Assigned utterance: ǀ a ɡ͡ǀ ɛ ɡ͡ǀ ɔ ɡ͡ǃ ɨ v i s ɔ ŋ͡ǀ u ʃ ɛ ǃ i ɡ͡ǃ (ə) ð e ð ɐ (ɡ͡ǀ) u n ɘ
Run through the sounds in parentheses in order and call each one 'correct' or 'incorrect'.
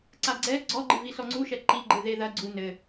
incorrect: ɨ, correct

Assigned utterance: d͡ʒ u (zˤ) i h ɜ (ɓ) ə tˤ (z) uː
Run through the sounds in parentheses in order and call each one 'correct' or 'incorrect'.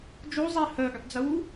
correct, incorrect: ɡ, incorrect: d͡z

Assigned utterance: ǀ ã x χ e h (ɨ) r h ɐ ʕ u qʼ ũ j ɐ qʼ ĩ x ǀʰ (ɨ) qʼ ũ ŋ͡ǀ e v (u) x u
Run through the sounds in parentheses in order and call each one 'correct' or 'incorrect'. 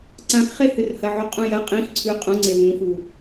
correct, incorrect: ʉ, incorrect: ũ

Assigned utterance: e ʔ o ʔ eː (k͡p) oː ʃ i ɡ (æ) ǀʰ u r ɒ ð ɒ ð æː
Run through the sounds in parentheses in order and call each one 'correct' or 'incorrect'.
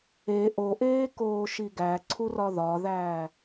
incorrect: k, correct

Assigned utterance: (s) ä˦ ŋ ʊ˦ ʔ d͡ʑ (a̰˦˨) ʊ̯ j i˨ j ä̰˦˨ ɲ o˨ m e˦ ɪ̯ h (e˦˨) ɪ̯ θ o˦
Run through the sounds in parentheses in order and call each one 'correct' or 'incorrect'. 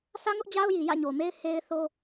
correct, incorrect: a˦, incorrect: e˦

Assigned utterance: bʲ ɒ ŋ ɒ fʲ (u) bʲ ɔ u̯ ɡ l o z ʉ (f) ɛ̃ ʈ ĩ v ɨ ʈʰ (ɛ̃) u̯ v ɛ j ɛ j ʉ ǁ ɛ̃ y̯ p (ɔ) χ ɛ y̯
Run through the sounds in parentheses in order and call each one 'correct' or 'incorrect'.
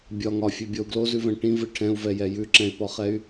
incorrect: ʉ, incorrect: v, correct, correct

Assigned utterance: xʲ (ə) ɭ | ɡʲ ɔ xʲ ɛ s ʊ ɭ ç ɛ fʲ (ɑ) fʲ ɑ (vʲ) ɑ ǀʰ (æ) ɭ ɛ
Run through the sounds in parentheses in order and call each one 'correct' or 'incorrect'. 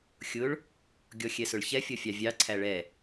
incorrect: ʊ, incorrect: ʌ, correct, correct

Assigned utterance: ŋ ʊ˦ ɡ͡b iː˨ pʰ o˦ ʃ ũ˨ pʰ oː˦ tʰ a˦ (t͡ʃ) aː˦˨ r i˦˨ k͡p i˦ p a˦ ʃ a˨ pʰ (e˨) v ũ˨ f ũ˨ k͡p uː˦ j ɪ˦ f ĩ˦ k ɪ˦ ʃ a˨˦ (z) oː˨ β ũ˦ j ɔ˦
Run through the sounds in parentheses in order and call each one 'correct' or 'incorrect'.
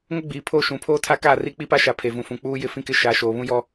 incorrect: k, correct, incorrect: ʃ

